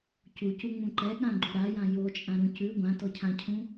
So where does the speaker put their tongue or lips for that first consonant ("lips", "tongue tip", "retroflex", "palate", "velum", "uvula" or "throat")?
palate